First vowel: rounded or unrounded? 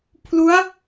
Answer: rounded